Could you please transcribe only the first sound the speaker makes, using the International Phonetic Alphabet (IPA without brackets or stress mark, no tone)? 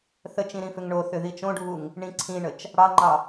θ